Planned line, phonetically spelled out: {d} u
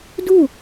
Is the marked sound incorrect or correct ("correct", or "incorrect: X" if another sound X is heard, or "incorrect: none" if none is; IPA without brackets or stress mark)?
correct